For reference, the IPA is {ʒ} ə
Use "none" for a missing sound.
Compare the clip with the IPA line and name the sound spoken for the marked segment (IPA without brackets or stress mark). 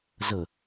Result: z